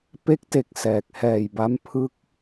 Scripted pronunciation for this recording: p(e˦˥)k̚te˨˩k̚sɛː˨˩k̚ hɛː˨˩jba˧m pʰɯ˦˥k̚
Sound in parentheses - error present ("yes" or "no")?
no